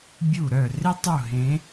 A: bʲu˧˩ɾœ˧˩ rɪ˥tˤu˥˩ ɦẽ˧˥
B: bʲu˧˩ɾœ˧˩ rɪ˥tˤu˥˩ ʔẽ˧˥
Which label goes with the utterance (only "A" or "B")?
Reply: A